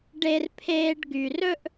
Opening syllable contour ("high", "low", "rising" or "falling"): high